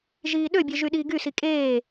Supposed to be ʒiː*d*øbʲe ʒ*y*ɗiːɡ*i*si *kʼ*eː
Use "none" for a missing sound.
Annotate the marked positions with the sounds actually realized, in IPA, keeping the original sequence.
ɗ, y, y, kʼ

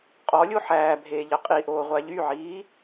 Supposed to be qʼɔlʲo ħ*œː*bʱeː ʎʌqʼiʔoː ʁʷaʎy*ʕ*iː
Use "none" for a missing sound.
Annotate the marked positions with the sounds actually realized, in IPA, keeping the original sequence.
æː, ʕ

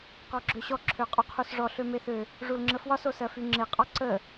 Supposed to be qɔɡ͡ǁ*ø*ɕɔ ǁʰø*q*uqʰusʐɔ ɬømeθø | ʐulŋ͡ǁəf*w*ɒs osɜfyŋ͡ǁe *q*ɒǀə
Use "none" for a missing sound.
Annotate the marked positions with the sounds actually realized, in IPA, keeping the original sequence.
ø, qʼ, w, qʼ

